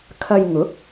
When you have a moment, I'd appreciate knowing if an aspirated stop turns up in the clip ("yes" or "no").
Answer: yes